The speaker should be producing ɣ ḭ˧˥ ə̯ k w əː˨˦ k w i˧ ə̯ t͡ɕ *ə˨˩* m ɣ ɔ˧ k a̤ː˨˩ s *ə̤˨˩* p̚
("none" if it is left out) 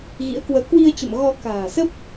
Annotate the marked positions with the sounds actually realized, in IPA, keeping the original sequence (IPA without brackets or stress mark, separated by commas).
ə̰˧˨, ə˦˥